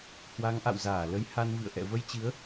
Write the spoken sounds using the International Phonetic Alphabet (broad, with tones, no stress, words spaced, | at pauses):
hwa˨˦ŋʔa̰˧˨w zaː˧˩ lə˨˦j ha˧nvɨ̰˧˨ə̯ ʔɛ̰˧˨ və˧jt͡ɕɨ˨˦ə̯